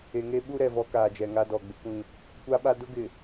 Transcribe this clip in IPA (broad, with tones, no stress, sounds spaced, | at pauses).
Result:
e˨ ŋ e˦ ɓ u˦ ɾ ɛ˨ v ɔ˦ k aː˨ d͡ʒ ɛ˨ ŋ a˦ d ɔ˨ ɡ͡b ɪ˦ kʷ ĩ˦ | kʷ a˦ ɓ a˦ d ʊ˦ ɡ ɪ˨